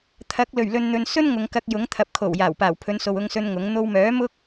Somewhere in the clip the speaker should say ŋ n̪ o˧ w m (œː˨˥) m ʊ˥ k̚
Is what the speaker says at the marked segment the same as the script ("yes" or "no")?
yes